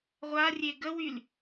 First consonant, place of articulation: uvular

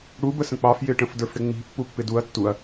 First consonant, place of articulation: retroflex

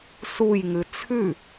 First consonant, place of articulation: alveolar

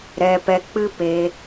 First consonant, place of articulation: alveolar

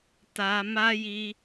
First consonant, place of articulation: alveolar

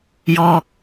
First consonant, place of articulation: palatal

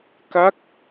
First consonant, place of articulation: velar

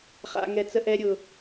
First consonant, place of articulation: uvular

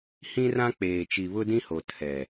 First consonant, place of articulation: glottal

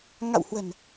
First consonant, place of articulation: velar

